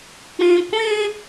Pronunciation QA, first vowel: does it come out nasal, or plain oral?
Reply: nasal